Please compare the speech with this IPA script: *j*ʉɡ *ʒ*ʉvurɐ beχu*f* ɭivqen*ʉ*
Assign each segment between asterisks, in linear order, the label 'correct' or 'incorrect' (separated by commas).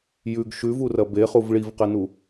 correct, incorrect, incorrect, incorrect